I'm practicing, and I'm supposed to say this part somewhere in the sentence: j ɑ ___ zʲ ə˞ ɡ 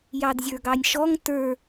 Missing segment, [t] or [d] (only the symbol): d